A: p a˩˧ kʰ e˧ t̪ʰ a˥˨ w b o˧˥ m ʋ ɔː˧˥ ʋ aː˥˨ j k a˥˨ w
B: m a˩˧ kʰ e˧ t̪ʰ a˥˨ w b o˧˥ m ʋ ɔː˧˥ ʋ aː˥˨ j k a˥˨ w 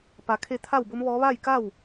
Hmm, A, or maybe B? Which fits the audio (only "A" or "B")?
A